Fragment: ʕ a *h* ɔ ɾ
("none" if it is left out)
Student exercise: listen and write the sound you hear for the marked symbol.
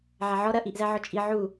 ʕ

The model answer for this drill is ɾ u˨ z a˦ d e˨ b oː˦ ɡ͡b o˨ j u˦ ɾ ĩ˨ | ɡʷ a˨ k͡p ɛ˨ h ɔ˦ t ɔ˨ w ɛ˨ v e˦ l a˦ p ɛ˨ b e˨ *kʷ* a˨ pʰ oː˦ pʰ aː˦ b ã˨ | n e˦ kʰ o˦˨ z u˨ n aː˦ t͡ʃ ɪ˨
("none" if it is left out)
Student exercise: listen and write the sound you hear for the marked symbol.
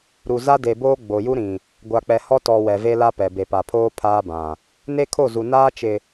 p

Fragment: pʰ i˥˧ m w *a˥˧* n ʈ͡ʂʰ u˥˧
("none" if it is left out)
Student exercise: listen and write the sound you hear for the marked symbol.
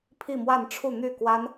a˥˧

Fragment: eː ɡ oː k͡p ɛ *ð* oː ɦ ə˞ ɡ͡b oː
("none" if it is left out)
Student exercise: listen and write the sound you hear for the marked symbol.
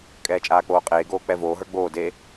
v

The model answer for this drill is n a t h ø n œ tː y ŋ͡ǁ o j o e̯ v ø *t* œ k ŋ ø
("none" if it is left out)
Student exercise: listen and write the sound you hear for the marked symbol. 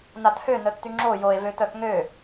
t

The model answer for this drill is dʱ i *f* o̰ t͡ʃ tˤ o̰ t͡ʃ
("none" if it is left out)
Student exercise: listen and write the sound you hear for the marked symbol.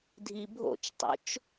bʱ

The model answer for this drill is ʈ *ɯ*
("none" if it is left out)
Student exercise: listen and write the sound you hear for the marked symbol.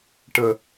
ə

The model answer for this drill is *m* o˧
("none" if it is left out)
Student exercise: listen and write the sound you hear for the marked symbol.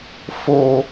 f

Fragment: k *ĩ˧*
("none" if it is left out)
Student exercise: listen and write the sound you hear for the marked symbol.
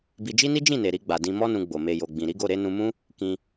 ĩ˧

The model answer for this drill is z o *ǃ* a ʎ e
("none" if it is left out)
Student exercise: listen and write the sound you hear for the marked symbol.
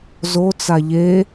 t͡s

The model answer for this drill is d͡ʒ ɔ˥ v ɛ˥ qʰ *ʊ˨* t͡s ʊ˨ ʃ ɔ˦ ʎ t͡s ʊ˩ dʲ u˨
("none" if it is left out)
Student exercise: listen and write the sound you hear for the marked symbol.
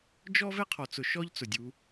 ɔ˨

